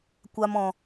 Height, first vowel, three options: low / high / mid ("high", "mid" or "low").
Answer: low